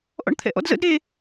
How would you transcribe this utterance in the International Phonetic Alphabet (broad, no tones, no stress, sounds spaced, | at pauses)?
ʔ ɔ̰ ɳ t̪ʰ ɛ̰ ʔ ɔ̰ d z ə̰ d ɾ e